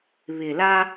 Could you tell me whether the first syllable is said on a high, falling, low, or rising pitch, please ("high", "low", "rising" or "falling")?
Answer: low